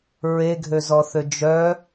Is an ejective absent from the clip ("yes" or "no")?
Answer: yes